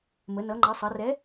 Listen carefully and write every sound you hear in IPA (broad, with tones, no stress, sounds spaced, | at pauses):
m ə˩˧ n ʌː˩˧ ŋ͡ǃ ʌː˩˧ sˤ ʌː˩˧ r ɛ˨˥